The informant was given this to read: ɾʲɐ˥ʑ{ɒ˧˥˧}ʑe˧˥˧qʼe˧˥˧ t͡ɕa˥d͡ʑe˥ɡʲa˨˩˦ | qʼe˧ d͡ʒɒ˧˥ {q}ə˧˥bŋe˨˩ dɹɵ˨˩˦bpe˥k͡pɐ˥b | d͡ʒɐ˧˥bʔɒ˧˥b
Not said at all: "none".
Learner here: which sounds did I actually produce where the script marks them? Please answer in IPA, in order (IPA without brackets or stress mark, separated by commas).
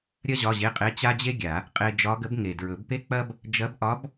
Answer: ɒ˧˥˧, ɡ